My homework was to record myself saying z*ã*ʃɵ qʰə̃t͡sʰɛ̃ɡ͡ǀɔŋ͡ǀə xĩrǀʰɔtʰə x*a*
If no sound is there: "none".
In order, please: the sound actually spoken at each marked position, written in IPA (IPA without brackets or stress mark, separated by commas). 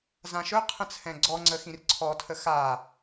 ã, a